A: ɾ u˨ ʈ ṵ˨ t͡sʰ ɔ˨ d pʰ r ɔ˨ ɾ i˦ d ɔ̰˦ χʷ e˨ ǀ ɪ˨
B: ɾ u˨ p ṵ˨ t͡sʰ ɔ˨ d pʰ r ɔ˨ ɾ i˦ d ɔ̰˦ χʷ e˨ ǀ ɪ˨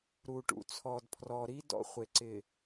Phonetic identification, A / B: A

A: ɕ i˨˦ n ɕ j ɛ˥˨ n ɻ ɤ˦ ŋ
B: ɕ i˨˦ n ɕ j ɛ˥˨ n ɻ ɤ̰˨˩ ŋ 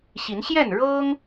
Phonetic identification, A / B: A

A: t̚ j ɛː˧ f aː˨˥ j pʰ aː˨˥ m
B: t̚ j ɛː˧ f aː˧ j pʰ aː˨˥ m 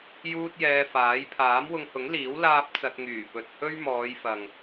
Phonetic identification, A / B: A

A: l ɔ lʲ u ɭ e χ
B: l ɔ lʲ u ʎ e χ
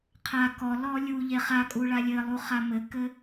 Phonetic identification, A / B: B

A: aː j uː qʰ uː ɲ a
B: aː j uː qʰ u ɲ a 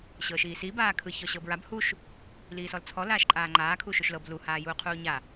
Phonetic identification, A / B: A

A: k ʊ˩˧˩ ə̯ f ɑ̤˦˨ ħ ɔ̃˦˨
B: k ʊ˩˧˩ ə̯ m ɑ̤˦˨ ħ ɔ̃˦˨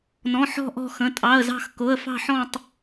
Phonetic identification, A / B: A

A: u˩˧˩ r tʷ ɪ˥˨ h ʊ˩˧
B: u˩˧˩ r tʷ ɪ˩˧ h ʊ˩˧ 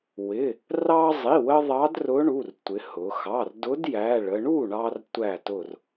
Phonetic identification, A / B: B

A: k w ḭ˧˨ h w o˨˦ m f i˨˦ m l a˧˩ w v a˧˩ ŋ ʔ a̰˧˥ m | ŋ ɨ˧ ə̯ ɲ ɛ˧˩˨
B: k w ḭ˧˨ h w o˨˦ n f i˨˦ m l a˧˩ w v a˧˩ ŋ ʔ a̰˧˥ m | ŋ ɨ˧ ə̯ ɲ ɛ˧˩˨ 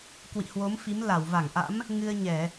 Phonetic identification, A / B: A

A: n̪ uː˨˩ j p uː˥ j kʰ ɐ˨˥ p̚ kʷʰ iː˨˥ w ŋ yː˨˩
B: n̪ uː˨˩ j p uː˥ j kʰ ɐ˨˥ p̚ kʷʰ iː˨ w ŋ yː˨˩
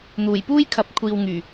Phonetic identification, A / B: B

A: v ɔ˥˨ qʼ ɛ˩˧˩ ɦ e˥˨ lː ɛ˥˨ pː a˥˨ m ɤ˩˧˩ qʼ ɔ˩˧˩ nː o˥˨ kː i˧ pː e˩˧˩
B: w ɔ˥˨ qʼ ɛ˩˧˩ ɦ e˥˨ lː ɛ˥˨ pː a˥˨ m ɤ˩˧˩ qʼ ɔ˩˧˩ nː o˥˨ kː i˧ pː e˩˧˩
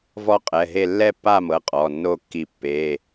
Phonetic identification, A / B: A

